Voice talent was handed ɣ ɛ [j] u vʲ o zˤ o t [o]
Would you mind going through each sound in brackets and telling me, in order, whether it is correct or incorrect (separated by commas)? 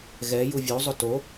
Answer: correct, correct